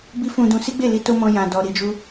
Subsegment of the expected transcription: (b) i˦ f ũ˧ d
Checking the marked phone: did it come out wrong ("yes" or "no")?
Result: no